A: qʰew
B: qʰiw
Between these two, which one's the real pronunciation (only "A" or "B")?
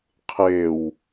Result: A